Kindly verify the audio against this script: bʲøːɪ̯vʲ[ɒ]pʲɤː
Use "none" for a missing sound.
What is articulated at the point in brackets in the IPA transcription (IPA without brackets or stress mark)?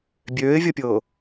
ʌ